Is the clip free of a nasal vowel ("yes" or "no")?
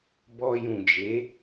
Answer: no